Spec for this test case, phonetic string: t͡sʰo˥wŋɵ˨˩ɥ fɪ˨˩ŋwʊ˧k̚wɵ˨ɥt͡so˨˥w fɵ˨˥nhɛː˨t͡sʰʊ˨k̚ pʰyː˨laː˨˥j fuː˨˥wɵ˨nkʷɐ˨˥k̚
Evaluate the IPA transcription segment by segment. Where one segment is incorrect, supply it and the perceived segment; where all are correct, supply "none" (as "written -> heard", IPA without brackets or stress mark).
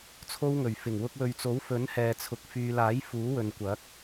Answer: pʰ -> f